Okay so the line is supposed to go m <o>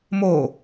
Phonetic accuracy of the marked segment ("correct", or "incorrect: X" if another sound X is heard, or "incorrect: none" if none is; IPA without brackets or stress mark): correct